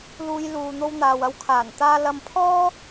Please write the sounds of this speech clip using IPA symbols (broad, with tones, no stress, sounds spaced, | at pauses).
l uː˧ j l uː˨ n̪ o˧ w n̪ aː˨ w ɐ˧ w kʰ aː˨˩ n t̪ aː˥ l ɐ˧ m pʰ ɔː˥